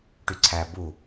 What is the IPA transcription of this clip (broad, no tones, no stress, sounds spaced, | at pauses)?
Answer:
ʈ y ǀʰ æ b u